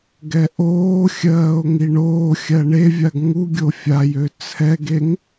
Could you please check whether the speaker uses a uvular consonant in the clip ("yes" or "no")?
no